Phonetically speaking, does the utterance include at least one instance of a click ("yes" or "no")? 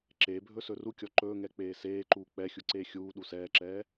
yes